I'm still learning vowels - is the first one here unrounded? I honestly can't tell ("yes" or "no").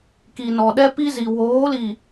yes